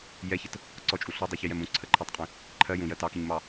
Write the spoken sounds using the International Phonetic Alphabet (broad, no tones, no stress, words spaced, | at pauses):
jɛçət | ǀɔt͡ʃʼu ɬɔdˤuçijɛm ũǀʰəǃʰɜtˤqʼĩ | ǃʰɜ jũjɜ tɑkiɲmɑ